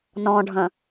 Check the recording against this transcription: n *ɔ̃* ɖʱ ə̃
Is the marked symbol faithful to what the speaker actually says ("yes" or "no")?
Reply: yes